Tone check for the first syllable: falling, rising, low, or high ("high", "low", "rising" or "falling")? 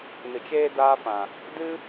low